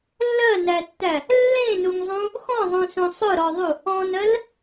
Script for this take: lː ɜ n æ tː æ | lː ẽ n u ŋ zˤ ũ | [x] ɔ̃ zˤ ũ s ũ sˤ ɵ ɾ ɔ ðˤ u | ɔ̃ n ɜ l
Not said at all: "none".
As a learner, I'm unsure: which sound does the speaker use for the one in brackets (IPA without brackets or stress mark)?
x